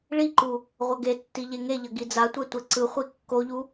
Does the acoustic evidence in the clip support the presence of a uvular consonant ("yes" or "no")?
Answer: yes